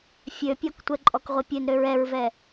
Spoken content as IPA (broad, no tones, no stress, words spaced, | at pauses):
fʲøpʲɔktʷɛǃʼɔk ʁʷipʲønɾøɹ ɛɹvɛ